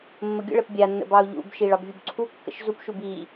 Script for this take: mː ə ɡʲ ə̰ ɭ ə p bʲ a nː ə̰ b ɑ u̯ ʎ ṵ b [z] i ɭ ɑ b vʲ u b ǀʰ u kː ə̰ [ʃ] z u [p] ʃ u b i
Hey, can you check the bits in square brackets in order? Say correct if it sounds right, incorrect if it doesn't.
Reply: incorrect: ʃ, correct, correct

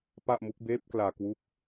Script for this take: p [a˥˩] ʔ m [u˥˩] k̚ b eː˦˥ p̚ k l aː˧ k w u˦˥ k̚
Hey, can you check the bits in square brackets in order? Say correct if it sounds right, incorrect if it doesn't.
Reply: correct, incorrect: u˦˥

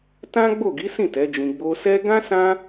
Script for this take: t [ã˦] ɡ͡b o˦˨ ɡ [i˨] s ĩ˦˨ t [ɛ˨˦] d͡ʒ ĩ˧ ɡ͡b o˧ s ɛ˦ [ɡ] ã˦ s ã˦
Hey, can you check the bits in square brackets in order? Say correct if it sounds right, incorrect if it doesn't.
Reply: correct, incorrect: i˨˦, correct, correct

